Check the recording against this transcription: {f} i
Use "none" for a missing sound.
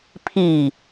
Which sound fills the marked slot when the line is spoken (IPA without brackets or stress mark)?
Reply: pʰ